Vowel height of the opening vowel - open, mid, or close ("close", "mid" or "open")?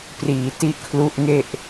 close